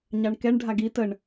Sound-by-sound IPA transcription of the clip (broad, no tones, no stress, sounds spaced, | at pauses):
ɲ ɑ ɳ k ɛ ɳ ɖʱ a ɡ i t ə ɳ